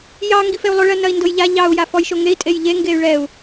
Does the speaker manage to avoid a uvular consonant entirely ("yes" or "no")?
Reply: yes